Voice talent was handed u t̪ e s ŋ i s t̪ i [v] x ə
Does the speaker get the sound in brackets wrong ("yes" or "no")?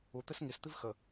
no